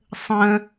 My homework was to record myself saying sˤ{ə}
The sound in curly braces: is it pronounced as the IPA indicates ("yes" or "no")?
no